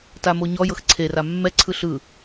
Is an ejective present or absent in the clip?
absent